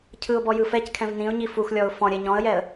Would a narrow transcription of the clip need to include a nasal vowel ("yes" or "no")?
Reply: yes